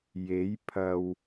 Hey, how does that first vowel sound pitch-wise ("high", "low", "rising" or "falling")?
rising